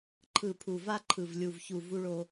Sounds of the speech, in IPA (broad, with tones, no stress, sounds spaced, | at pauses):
ǃʰ ɯ˨ pʰ u˨ v a˦ ǃʰ ɯ˨ v lʲ u˨ v ç u˨ v u˦ ɭ o˦